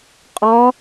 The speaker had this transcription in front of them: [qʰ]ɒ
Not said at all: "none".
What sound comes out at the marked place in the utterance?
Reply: qʼ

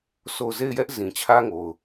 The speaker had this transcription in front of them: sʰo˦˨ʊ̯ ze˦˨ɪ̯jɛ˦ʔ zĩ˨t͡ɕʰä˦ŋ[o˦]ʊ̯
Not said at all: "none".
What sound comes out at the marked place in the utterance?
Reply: o˨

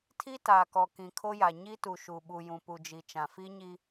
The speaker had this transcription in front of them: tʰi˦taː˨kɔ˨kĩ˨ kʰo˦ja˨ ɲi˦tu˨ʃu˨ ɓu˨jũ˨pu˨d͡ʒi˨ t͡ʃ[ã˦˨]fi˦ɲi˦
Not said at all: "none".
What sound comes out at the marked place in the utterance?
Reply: ã˨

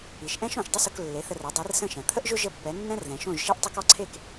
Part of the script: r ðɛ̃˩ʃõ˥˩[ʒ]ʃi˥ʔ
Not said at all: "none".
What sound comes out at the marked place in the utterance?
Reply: ʒ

